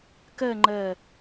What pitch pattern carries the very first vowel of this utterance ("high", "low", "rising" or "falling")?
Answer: falling